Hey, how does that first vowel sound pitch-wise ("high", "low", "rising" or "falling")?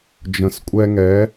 low